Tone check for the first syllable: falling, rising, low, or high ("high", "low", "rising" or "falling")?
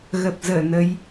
low